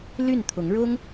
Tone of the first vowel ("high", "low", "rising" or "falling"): falling